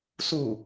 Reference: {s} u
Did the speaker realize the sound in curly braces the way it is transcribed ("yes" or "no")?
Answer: yes